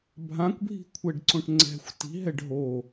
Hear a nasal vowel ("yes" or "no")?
yes